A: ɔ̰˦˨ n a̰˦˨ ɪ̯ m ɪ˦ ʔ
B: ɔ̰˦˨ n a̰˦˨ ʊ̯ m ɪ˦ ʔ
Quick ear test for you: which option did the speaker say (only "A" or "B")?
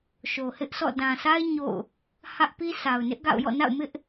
B